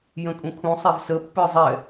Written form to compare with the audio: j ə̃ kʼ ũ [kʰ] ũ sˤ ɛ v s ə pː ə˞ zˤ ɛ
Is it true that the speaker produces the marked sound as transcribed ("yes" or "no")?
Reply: yes